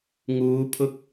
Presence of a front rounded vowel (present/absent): absent